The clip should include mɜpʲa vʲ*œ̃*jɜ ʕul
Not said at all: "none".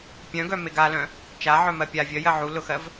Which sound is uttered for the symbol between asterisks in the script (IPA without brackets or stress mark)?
œ